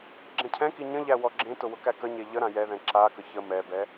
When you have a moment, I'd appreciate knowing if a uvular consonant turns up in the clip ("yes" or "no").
no